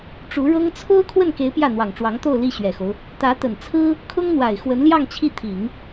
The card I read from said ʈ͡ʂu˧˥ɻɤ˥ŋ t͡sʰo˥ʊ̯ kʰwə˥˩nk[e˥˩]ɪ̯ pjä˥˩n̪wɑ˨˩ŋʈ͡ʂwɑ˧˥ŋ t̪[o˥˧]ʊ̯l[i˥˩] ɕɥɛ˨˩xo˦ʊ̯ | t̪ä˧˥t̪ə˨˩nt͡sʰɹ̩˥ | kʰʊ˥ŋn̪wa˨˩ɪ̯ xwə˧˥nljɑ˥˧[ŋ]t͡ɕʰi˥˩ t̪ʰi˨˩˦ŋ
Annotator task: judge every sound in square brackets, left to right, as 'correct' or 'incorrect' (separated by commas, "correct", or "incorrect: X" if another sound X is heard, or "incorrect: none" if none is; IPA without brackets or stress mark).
incorrect: e˧˥, correct, correct, correct